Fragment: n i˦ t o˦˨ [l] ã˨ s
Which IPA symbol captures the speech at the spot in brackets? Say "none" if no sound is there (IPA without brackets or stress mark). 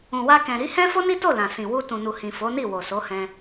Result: l